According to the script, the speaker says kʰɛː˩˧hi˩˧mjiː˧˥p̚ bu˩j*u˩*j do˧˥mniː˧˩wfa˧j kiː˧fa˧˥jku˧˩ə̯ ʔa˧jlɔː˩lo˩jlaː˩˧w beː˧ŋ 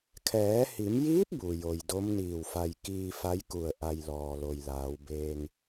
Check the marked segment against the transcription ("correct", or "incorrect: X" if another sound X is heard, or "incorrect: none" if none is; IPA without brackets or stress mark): incorrect: o˩